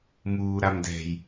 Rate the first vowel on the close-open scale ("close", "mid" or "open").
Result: close